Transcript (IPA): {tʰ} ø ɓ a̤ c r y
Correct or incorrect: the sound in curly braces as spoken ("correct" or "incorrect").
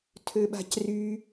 correct